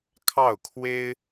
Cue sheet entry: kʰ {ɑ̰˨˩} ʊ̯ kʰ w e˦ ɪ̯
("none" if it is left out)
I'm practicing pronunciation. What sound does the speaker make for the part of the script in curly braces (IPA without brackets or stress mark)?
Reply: ɑ˥˨